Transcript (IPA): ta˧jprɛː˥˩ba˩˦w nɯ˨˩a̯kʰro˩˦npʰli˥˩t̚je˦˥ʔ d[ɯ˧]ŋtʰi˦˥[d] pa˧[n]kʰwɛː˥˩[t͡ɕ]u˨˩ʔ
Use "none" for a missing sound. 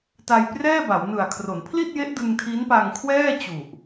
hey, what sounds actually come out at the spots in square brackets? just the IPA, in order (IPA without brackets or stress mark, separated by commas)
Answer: ɯ˧, n, ŋ, t͡ɕ